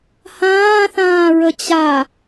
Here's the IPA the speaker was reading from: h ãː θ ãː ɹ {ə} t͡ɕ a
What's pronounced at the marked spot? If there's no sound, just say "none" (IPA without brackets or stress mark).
ə